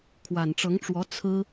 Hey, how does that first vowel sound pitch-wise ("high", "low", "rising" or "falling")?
low